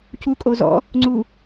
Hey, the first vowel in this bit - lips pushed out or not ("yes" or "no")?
yes